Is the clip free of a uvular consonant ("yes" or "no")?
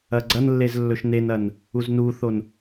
yes